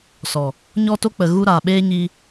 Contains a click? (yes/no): no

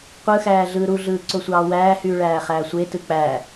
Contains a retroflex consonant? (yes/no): yes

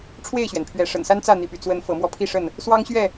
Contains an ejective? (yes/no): no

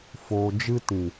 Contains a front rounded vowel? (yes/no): no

